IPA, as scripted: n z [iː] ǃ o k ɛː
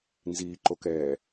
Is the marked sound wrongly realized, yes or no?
no